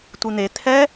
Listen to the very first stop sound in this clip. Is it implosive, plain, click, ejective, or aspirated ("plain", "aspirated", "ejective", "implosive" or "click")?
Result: plain